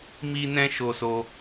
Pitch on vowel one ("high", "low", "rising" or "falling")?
high